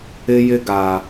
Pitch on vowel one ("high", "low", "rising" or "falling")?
high